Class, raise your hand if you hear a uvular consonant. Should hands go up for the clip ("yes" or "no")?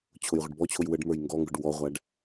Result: yes